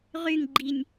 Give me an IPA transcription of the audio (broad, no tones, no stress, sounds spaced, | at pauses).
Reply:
ʁ y ŋ ɡ͡ǃ i nʲ